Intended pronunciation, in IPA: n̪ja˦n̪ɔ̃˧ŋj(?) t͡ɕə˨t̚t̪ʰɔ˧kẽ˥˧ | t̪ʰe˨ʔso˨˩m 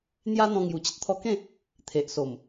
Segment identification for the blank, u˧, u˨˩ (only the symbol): u˨˩